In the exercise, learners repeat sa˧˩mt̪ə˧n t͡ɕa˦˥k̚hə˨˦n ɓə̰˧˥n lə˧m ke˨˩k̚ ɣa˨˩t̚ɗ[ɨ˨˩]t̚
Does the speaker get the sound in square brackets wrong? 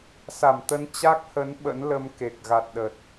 yes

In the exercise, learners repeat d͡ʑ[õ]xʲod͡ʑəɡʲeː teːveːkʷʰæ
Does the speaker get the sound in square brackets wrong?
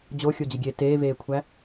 yes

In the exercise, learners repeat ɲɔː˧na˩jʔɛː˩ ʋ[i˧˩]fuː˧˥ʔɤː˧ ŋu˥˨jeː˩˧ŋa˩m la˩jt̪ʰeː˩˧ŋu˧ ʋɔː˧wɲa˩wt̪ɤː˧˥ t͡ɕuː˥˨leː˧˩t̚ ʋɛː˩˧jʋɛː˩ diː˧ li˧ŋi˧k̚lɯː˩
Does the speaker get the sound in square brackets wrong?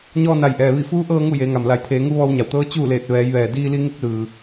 no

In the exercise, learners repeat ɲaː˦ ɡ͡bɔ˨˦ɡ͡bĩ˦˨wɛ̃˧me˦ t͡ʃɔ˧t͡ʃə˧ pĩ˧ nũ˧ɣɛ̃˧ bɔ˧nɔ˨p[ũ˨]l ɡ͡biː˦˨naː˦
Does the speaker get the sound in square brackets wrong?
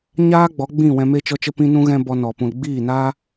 no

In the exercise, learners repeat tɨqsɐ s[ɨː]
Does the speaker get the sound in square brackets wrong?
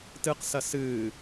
no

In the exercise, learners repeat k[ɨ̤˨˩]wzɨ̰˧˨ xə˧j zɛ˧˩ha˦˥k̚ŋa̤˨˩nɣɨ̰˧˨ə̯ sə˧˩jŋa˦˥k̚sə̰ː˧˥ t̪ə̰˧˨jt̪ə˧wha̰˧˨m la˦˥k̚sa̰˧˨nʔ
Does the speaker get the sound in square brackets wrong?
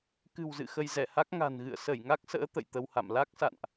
no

